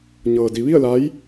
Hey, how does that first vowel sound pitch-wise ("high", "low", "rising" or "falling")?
low